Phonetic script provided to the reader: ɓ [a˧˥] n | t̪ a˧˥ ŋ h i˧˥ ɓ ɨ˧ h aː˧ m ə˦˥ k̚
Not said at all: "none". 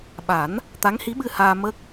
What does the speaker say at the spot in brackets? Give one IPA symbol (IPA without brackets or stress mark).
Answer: a˨˩˦